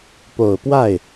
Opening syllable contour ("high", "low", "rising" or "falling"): low